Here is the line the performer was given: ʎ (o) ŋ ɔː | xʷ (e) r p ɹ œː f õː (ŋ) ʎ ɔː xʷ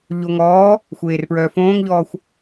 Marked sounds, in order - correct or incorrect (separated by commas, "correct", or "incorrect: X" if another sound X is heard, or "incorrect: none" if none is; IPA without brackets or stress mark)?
correct, incorrect: eː, correct